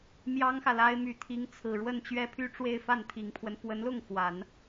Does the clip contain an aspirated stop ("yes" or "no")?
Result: yes